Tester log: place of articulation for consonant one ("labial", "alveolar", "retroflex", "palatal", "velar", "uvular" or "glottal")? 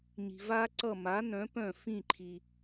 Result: palatal